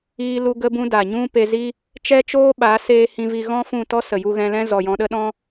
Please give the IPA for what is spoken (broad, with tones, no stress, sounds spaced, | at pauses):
iː˦ l u˦ ɡ ə˦ b ũ˦ d a˨ ɲ ũ˦ p e˧ z i˦ | t͡ʃ ɛ˦ t͡ʃ oː˦ ɓ a˨˦ s eː˧ h ĩ˧ v i˧ ɣ ɔ̃˦ f ũ˦˨ t ɔ˦ s ə˨ j u˧ ɣ ɛ̃˧ l ɛ̃˦ z ɔ˨ j ɔ̃˧ ɗ ə˦ ɗ ɔ̃˦